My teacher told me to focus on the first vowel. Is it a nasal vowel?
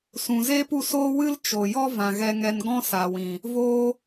yes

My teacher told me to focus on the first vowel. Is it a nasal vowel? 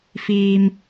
no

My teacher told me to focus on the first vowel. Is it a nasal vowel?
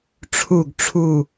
no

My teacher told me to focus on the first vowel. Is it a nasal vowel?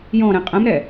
yes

